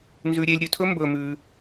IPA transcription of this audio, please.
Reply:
n z ʉ˧ ɾʲ e˧ lʲ ɾʲ ɵ˧ tʰ ɵ˥ m b ɵ˧ m ʉ˧

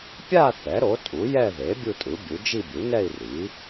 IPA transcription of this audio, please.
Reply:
pʲ a˥˧ θ ɛ˩˥ ɾ o˩˥ tʼ u˩˥ j ɛ˥˧ ð e˩˥ bʲ u˥˧ tʼ ɯ˩˥ bʲ u˩˥ d͡ʒ i˥˧ bʲ u˩˥ n ɛ˥˧ i̯ r i˩˥

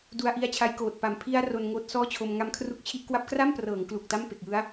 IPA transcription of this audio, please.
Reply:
d u˧ a̯ ʔ i˧ a̯ t͡ɕʰ a˧ j k oː˨˩ t̚ p a˨˩ m pʰ i˧ a̯ r o˧ n ŋ oː˦˥ t̚ s ɔː˥˩ t͡ɕʰ o˧ m ŋ a˦˥ m kʰ r u˦˥ k̚ t͡ɕʰ i˥˩ ʔ k w a˦˥ p̚ k r a˥˩ m p r ɤː˩˦ ŋ k l u˨˩ k̚ t a˥˩ m p e˨˩ k̚ j ɯ˦˥ a̯

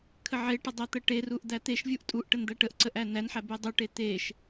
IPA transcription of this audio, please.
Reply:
kʰ ə ʕ e ʈ ə dˤ æ t̪ ə ʈ e r u ʔ d̪ æ t̪ e ʃ vʲ u ʔ tʼ u ʔ ʈ ə n d̪ æ ʈ ə ʔ ǀ ə ʔ æ n æ n ħ æ b e dˤ u ʈ e t̪ e ʃ

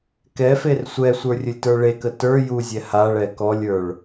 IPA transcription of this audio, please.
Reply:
k ɛ f e r sʷ ɛ sʷ ə˞ rʲ ɵ lʲ t ə˞ ɭ e k ə t ə˞ j u zʲ ɛ h a ɭ ɛ k ɔ lʲ ə˞ ɭ

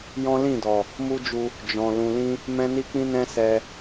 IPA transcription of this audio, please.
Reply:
j ɔ̃˦ l ĩ˦˨ d ɔ˨ | m u˦ d͡ʒ u˧ | d͡ʒ ɔ̃˨ l ũ˨ l ĩ˧ | m ɛ̃˦ n i˦ k͡p ĩ˦ n ɛ̃˦ s ɛ˧

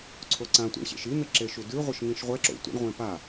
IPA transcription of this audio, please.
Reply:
ǀʰ o ǀ ã tʷ ḭ ɳ ɕ ḛ ʃ i n̪ ɘ ǁ e ʃ u d ʉ ʁʷ ɘ ʃ ŋ ĩ ʃ ʁʷ ɛ ǁ o̰ tʷ ɛ̰ ɳ ʁʷ ẽ p a

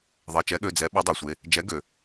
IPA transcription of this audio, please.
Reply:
ðˤ e˩˧˩ t͡ʃ ɛ˨˥ ɠ ø˩˧˩ d͡z ɛ˨˥ ɓ ø˨˥ dˤ e˩ sʷ e˩˧˩ | d͡ʒ ɛ˨˥ ɡ ø˩

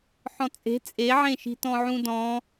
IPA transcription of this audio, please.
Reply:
ħ ɔ̃ t͡sʼ e̤ t͡sʼ e ʕ ẽ ʃ i̤ t ɔ̃ ʕ ũ d ɔ̃

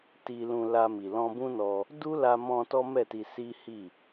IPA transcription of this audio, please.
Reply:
t i˧ l ũ˧ l a˧ m i˨ l ɔ̃˧ b ũ˦ n ɔ˧ | d u˦ l a˧ m ɔ̃˧ t ɔ˦ m ɛ˦˨ t i˧ s i˦ h i˦˨

